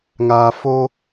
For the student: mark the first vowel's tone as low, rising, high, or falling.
low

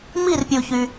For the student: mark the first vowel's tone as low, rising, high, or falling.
falling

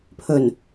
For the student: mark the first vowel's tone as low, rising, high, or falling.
low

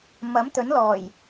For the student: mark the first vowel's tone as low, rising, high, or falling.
rising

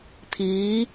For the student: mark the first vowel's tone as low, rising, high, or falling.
rising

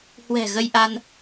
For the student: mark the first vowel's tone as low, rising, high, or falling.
low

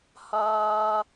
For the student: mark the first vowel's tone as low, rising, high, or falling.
high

